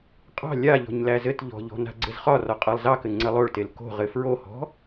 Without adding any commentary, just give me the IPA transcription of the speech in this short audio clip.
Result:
qʼ ɑ̤ lʲ a ʎ ɔ̤ ɲ l æ z ɘ t ʎ ɔ̤ ʎ ɔ̤ n a̤ ɡ͡ǀ ɘ z χ ɒ r ɒ qʼ ɑ lˠ z ɑ k ɘ ŋ͡ǀ ɘ lˠ o ɭ t e l k o̤ ʁ ɘ f ɹ o h ɔ̤

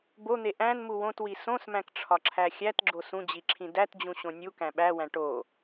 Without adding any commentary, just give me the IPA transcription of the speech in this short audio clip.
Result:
b o n̪ e ʔ æ̃ n m u w õ t w i s õ s m æ̃ k ʈ͡ʂʰ ɒ ǁʰ æ xʲ æ t ɡ͡ǁ o s ũ d͡ʑ i ǁʰ ĩ d æ t d͡ʑ ũ ɕ õ nʲ u k æ̃ ɓ æ w æ̃ ʈ o

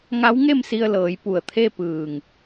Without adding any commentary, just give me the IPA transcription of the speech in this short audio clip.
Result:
ŋ a˧˥ w ŋ e˥˨ m s i˧ ə̯ l ɤː˩˧ j p u˩ ə̯ t̪ʰ e˥˨ p ɯː˧˩ ŋ

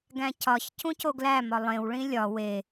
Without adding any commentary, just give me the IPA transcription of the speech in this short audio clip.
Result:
ɡ æ̃ cʰ ɒ ç cʰ ũ cʰ o ɡ l æ m ɒ lˠ ẽ w ɭ ĩ lʲ ɒ w e

